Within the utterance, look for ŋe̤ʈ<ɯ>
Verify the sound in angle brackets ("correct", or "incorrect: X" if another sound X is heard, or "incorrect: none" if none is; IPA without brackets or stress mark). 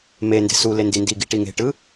correct